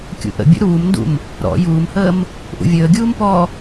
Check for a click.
absent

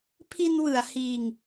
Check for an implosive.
absent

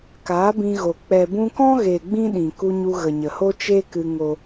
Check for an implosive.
present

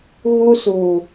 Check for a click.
absent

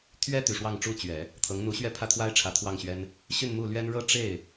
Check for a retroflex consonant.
present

